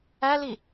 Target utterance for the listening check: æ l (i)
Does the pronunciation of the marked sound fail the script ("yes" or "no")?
no